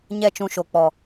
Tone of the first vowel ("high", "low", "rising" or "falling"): falling